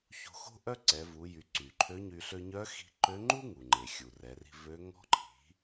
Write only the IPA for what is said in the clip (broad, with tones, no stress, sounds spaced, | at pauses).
ç o̤˧ x o̤˥ ʔ œ˥ ǀ ɛ˩˧ v u˩˧ j y˩˧ ǀ y˩ ǃʰ ø˧˥ ɲ y˧ ɬ ø˧ ɲ œ˧˥ x i̤˧ ǃ ø˧˥ ŋ͡ǃ u˥ ŋ u˩ ŋ͡ǃ e˩ xʲ u˩ r ɛ˩˧ r i̤˧ v ø˧˥ ŋ ɔ̤˧˥ ǃʰ i̤˩˧